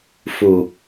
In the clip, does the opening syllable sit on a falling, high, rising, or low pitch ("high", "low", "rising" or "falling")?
low